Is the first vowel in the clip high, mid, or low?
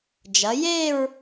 low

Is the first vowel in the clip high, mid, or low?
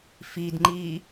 high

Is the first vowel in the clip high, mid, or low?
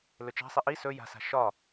mid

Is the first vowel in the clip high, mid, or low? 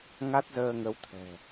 low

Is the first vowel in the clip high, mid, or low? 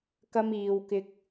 low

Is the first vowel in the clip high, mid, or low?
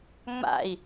low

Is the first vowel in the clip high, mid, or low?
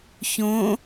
mid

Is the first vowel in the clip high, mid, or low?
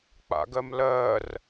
low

